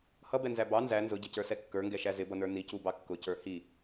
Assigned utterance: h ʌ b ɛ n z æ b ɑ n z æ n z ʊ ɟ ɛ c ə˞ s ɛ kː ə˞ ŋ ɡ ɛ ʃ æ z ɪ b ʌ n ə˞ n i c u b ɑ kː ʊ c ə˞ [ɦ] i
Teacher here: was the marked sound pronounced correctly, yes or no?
no